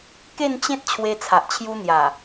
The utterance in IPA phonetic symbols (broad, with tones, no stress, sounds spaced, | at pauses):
k e˥˧ n t͡ɕ ẽ˦ t̚ t͡ɕʰ w e˧ t͡sʰ a˨ ʔ t͡ɕʰ j u˧ n̪ j a˨˩